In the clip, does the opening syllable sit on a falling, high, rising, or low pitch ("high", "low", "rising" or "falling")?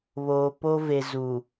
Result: low